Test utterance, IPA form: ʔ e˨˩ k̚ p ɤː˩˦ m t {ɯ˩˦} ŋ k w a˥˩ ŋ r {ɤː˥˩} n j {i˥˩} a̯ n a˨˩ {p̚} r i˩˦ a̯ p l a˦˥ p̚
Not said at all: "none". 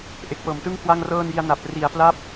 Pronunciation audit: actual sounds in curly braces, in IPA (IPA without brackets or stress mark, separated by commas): ɯ˥˩, ɤː˥˩, i˧, p̚